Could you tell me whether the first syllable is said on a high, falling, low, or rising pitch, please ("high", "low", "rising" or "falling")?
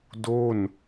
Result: falling